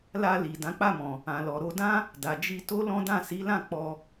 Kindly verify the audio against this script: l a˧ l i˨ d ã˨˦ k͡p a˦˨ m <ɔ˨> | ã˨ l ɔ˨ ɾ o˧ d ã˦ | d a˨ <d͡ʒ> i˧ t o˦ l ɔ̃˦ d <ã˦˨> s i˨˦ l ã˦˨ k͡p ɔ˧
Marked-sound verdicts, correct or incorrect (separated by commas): incorrect, correct, correct